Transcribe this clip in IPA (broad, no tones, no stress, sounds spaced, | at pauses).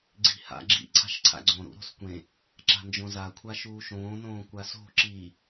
ɡ͡ǀ i̤ h a̰ ɡ͡ǁ ḭ ǀʰ a̤ ʃ ǀʰ a̰ ɡ͡ǀ õ ɾ ṵ ɾ o̤ s kʷ ẽ | ǁ a̤ n d͡ʒ õ z a kʷʰ a ʃ uː ʃ õː n õː kʷ a s o̤ ǁ i